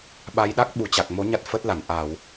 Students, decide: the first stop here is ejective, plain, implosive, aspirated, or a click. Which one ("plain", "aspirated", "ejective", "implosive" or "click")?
implosive